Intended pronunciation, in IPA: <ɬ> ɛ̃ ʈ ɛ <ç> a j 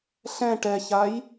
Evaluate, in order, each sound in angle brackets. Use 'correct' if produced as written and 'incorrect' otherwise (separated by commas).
correct, correct